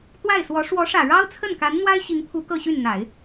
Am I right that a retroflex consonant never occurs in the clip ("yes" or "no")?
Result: no